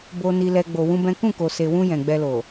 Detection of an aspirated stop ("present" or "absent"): absent